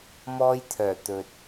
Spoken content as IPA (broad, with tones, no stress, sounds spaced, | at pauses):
m ɔː˧ j t̪ʰ œː˨˩ t̪ ɵ˨ t̚